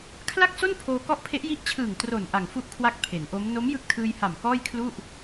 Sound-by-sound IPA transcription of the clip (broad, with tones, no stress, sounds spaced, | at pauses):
kʰ l a˥˩ k̚ s o˥˩ n pʰ oː˧ k ɔ˦˥ ʔ pʰ e˦˥ ʔ j i˦˥ ʔ t͡ɕʰ ɯː˨˩ ŋ t r o˨˩ n ʔ a˨˩ ŋ f u˦˥ ʔ kʰ w a˦˥ k̚ pʰ e˩˦ n ʔ o˦˥ m n o˦˥ m j ɯ˦˥ k̚ tʰ ɯː˧ j h a˨˩ m k ɔː˥˩ j kʰ l u˥˩ ʔ